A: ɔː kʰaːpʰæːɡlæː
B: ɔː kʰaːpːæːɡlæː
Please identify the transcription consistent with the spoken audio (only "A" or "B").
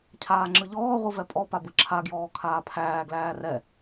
A